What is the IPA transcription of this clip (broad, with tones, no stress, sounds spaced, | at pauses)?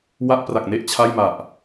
w a˦˥ ʔ p r a˨˩ k̚ n e˦˥ ʔ t͡ɕʰ a˥˩ j m a˨˩ ʔ